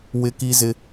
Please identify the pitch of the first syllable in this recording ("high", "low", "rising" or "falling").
high